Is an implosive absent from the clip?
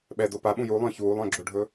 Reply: no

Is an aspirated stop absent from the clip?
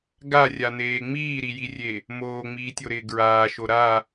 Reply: yes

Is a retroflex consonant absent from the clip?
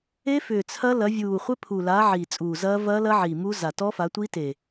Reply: yes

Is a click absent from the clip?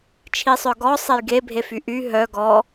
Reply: yes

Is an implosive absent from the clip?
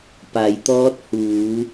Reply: yes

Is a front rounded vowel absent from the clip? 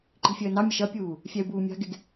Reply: yes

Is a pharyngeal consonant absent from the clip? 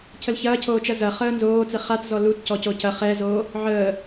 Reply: no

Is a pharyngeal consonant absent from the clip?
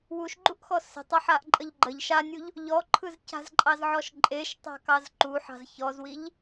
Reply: no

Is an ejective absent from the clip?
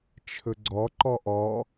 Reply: yes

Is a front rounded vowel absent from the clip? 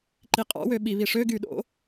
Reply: no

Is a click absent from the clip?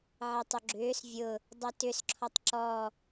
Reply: no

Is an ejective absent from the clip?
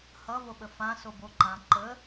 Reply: yes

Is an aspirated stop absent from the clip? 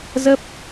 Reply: yes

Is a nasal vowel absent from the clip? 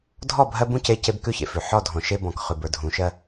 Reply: no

